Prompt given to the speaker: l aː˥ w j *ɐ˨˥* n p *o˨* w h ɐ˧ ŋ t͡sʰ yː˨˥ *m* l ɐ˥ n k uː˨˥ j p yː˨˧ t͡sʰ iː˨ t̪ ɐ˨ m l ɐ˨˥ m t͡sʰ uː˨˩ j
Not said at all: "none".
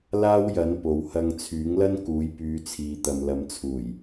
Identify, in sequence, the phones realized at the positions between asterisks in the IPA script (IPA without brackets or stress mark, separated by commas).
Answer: ɐ˨˥, o˨, ŋ